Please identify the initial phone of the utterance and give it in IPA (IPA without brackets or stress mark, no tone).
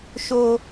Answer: ʃ